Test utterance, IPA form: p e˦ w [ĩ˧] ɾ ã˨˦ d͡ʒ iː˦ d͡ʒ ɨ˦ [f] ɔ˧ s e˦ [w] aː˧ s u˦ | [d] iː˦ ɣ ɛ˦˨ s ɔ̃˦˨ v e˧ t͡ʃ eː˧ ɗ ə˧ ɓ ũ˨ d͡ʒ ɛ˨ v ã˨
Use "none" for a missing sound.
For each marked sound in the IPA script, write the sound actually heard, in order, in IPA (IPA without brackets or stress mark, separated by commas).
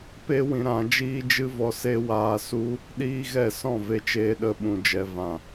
ĩ˧, v, w, ɗ